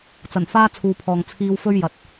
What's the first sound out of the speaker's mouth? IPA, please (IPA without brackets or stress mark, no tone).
t͡s